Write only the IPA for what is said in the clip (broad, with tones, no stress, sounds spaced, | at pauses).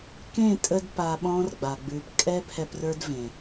k ẽ˦˨ tʼ ə˧ d p a˧ ɓ ɔ̃˦ r ɡ͡b a˨ ɡ͡b ʉ˨ p kʼ ɛ˦ pʰ ɛ˧ p r ə˞˦ d v ẽ˨